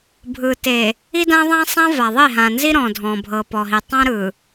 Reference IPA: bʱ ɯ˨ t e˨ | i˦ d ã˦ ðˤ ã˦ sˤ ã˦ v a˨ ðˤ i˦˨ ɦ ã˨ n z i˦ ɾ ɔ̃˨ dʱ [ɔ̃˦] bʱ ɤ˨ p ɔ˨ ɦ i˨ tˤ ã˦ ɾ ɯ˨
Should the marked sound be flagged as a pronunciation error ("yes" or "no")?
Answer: yes